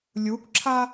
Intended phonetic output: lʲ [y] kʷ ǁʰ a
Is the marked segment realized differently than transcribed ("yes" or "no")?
yes